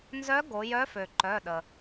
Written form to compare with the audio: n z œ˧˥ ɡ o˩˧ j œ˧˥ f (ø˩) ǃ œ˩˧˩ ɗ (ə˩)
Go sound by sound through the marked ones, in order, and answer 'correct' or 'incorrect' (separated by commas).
correct, correct